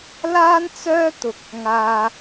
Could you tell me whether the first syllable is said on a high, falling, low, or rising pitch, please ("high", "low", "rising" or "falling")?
high